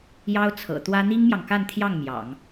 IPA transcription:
j ɑ˥ ʊ̯ t͡sʰ ɤ̰˨˩ t̪ w ä˥ n̪ i˥ ŋ m j ɑ˨ ŋ k a˥˧ n t̪ʰ j ɑ˥˩ ŋ m j ɑ̰˨˩˦ ŋ

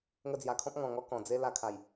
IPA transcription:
ŋ ə˧ d͡z j a˨˩ kʰ ɔ̃˦ p̚ ŋ ɔ̃˨˩ ŋ ɔ˦ k ɔ̃˨˩ d͡z e˦ l a˧ kʰ a˨˩ j

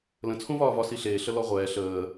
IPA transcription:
l ə̃ t͡sʰ ũ v ɒː v ɒ s i ɬ eː ɬ ə l ɔ ʁʷ ɛː ɬ əː

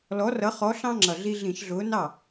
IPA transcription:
l ɔ˨˥ r ʌ˨˥ χ ɔ˨˥ ɬ ɑ̃˦ ŋ͡ǁ ʌ˨˩ ɮ i˦ ɮ ĩ˧˩˧ ʃ ɮ ʊː˨˥ n ɑ˥˩

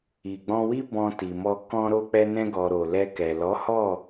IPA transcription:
i˨ ɡ͡b ɔ̃˧ w i˦ b ɔ̃˧ t i˨ m ɔ˧ k ɔ̃˦ ɾ o˧ k͡p ɛ˧ n ɛ̃˧ ɡ ɔ˨ ɾ o˨ l ɛ˧ k ɛ˨ l ɔ˨˦ h ɔ˦˨

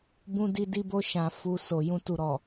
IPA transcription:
b ũ˦ d i˦ d i˦ b o˦ ʃ ã˧ f u˧ s o˨ j ũ˧ t u˨ ɾ ɔ˨

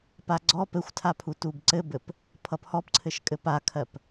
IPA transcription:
p a ɡ͡ǀ ɔ p ɘ xʷ tʰ a pʰ u t u b ǀ ɘ b ɘ p | pʰ ʌ p h ɔ p ǀʰ ɘ ʃ kʼ ɘ p a kʰ ɜ p

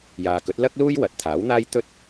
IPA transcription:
j aː˨ k ɵ˨˥ t̚ l ɐ˥ k̚ l uː˥ j w ɐ˨˥ t̚ t̪ʰ aː˨˥ w n̪ aː˥ j t̪ ɵ˥ t̚

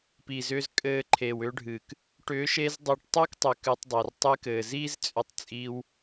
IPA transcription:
p i˨ z ʏː˧ z kʼ ɘː˧ ǃʰ eː˨ w ʏː˧ ɖʱ ɨː˨ k | ʈ ʏː˨˦ ʃ eː˧ z dˤ ɘː˧ ʈ tˤ ʏː˦ k tˤ ʏ˨ k ɨː˧ tˤ dˤ ɘː˨ r tˤ ɨ˧ k ɘː˨ z iː˦ z t͡sʼ ʏ˧ tˤ t͡sʼ iː˧ w

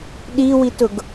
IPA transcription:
ɗ i w i t ʊ ɡ

